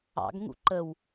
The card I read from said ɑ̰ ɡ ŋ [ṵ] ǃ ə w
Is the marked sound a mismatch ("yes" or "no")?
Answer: no